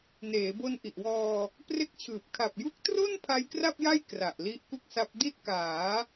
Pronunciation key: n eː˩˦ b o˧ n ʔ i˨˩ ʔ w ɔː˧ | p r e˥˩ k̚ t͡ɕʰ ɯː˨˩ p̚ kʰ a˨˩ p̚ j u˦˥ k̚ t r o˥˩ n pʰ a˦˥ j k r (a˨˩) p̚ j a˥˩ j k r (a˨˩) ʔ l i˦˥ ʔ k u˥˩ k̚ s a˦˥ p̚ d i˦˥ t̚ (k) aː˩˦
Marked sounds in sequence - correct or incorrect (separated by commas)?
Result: incorrect, correct, correct